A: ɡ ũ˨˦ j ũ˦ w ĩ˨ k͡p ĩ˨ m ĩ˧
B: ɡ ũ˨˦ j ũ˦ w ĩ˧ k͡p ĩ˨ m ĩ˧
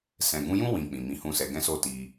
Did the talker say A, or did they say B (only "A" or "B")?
B